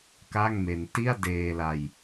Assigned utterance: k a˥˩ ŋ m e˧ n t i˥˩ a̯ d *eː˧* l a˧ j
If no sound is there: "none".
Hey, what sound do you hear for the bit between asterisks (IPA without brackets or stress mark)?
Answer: eː˧